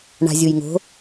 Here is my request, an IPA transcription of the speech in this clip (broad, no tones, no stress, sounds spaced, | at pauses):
ɳ a̤ zʲ u j ŋ o̤